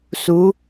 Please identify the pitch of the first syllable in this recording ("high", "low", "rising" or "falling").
rising